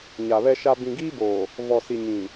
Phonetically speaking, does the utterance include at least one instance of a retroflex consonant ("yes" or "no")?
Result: no